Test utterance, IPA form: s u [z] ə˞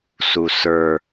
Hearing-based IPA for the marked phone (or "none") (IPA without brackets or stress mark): s